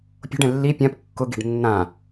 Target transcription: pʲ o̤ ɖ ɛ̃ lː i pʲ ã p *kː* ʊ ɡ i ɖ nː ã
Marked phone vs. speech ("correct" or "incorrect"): correct